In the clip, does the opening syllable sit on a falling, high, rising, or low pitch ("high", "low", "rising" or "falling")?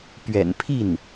low